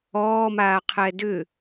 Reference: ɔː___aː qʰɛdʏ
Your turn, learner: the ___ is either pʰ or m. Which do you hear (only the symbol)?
m